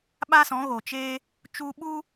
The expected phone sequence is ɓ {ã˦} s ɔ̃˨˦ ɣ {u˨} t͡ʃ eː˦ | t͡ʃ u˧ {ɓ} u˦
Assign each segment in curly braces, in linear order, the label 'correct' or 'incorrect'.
incorrect, incorrect, correct

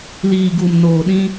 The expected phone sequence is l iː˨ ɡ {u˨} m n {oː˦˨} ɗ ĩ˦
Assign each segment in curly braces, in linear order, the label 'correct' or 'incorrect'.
correct, incorrect

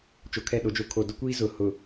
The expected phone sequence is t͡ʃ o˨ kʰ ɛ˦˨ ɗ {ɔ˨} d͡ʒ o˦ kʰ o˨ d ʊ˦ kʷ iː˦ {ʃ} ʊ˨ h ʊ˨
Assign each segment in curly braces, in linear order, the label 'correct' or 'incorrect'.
incorrect, incorrect

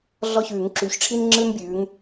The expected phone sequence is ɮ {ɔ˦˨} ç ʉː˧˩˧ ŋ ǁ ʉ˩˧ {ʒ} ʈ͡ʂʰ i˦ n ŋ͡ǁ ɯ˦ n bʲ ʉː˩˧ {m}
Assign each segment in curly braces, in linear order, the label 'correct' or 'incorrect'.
correct, incorrect, incorrect

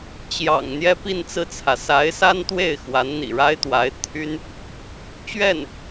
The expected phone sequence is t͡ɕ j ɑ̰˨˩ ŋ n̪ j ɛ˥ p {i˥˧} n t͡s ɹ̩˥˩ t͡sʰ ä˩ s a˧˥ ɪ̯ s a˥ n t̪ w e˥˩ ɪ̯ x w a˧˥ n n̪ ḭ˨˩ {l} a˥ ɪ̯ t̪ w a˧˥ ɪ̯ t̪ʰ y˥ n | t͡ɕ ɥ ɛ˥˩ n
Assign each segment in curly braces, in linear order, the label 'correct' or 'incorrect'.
correct, incorrect

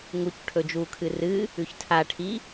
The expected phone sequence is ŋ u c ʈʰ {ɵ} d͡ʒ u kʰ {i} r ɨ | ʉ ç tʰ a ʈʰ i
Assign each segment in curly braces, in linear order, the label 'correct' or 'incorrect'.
correct, incorrect

